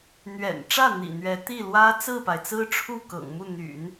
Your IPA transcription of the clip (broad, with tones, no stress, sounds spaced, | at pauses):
n̪ ɥ ɛ̰˨˩ n ʈ͡ʂ ä˥˩ n̪ ḭ˨˩ n̪ ɥ ɛ˧˥ t̪ i˥˩ l w ä˥ t͡s ɹ̩˥˩ p a˩ ɪ̯ t͡s ɹ̩˥ ʈ͡ʂʰ u˥˩ k ɤ̰˨˩ ŋ m u˥˩ n̪ y̰˨˩˦ n